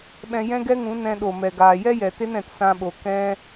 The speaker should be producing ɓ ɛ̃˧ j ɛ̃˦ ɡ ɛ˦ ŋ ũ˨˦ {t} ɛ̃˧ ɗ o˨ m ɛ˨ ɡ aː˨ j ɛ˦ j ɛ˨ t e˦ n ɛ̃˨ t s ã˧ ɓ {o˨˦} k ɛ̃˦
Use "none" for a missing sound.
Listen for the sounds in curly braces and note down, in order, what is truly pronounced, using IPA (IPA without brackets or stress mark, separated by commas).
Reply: n, o˨